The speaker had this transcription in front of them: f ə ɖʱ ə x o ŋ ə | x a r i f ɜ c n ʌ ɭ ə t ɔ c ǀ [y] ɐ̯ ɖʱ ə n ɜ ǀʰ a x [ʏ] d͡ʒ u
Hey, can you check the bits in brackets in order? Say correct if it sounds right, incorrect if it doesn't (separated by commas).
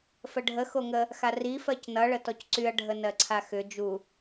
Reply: correct, correct